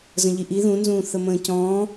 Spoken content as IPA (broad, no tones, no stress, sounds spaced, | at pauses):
z ə̃ ʎ i ʔ i ð ũ n z ũː θ ə m ə̃ː c ɔ̃ː